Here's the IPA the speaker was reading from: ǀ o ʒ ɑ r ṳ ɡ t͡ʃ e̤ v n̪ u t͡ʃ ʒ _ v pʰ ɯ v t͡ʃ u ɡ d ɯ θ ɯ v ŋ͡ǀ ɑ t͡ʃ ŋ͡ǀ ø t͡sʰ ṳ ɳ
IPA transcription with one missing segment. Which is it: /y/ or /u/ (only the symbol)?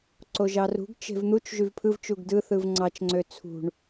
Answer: y